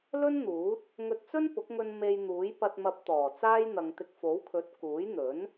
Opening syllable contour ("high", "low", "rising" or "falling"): high